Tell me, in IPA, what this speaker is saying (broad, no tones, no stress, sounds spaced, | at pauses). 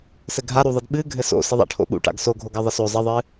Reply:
s ɘ ɡʱ a ɾ u ðˤ ɨ d ɓ ɨ ɡʱ ɘ s o̰ s ɘ ðˤ a̰ ʈʰ o̰ ɓ ṵ ʈ a̰ ɡ s o ɡʱ o ɡ ɐ ðˤ ɘ s o zˤ ɘ ðˤ ɨ